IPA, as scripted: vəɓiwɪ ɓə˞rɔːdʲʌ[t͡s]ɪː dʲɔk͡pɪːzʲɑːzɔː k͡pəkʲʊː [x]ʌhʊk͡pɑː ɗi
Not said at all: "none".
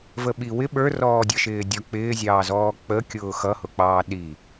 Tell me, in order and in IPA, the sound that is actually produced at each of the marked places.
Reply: ʃ, x

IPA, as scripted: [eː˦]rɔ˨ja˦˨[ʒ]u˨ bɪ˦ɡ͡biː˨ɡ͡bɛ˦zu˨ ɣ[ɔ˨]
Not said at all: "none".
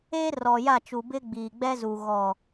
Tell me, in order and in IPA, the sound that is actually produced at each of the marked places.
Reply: eː˦, t͡ʃ, ɔ˨

